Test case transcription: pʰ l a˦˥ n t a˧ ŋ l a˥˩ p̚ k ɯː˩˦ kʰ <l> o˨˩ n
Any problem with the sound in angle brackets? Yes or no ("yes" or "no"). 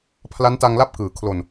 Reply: no